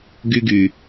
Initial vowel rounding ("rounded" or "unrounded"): rounded